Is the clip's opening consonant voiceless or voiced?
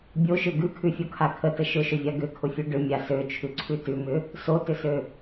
voiced